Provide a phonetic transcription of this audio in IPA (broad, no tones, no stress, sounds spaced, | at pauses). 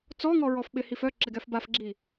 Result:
t͡s ɔ ŋ ɔ ɹ ɔ f ɓ ɪ h i f œ ǁ ɪ ɡ ɛ f b a f ɡ͡ǁ i